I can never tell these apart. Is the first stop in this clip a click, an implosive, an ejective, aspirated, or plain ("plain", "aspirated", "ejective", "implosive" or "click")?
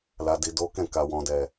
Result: plain